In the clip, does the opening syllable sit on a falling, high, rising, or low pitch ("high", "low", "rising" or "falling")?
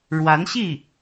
rising